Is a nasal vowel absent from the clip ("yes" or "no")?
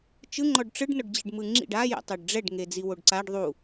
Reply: yes